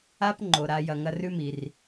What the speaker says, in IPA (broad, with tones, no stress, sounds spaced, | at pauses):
a˦ p ŋ͡ǃ o˩ ɾ a˨ j ɐ˨ ŋ ɐ˦ r ʉ˥ m i˩ r